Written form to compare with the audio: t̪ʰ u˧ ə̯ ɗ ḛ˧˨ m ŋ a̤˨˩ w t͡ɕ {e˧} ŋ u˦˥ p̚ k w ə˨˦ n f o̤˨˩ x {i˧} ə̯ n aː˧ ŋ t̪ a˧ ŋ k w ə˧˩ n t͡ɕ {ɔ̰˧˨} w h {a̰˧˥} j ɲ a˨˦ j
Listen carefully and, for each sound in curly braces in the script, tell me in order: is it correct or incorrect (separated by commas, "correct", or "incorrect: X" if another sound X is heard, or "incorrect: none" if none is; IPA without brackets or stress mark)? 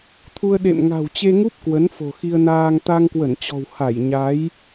correct, correct, incorrect: ɔ̤˨˩, incorrect: a˧˩